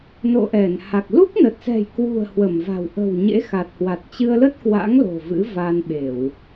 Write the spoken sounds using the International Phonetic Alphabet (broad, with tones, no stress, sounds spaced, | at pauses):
n o̰˧˨ ʔ ɛ˧˩ n h a˨˩ k̚ l u˦˥ k̚ n ə˨˩ t̚ s ɛ̤˨˩ j k w ṳ˨˩ ə̯ h w ə˧˩ m v a̤˨˩ w ʔ ə̤˨˩ w ɲ ḛ˧˥ x a˨˩ t̚ h w a˨˩ t̚ t͡ɕ ɨ˧ ə̯ l ə˦˥ t̚ k w a̰˧˥ ŋ l o̤˨˩ v ɨ̰˧˥ v a˧ n ɓ e˧˩˨ w